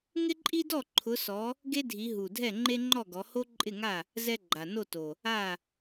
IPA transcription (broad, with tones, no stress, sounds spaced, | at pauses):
ŋ ɪ˥ ǃʼ i˥ d ɔ˥˨ ǃʰ ʊ˨˦ s ɔ˨˦ | ɡ e˥ dʱ i˨˦ ɦ u˨˩ dʱ ɛ˥˨ ŋ͡ǃ e˥ ŋ͡ǃ ɔ˥˨ ɡ ɔ˨˦ h o˥ ǃʼ ɪ˥˨ ŋ a˥˨ | z ɛ˥ ɡ͡ǃ a˨˩ n o˥˨ t o˨˩ | a˥˨